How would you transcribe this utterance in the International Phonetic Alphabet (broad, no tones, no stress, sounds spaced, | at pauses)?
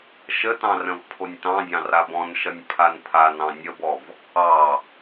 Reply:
ʃ ə t ɑ̃ r ə̃ v pʰ o nʲ t ɑ̃ dʲ ɑ̃ r a b ɔ̃ n ʃ ʌ nʲ pʰ a n pʰ a n ɑ̃ nʲ ə b ɔ v | ɑ